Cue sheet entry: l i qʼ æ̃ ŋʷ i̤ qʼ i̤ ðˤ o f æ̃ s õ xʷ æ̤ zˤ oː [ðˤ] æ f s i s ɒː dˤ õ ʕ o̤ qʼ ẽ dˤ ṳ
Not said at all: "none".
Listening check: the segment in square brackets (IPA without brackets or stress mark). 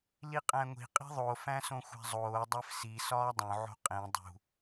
dˤ